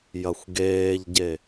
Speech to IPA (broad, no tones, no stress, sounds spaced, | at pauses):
j ɐ xʷ ɡ eː ʎ ɟ e